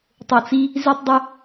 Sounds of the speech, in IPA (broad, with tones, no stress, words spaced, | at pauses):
tˤo˨t͡si˧ | zi˧tˤdˤɵ˧